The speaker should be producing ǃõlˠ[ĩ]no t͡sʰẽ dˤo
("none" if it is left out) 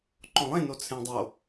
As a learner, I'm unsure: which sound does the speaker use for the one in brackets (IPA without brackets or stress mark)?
ẽ